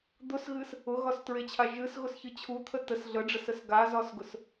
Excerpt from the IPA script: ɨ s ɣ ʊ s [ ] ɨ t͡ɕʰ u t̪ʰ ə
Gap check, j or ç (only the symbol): ç